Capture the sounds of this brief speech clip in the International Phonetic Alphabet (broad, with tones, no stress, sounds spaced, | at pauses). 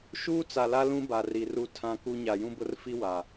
ʃ uː˦ t͡s a˨ l a˦ l ũ˦ b a˨ r i˨ r u˦ tʰ ã˦ k u˦ ɲ a˨ j ũ˦ b ʊ˦ r f i˦ w a˨